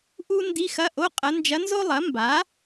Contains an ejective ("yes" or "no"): yes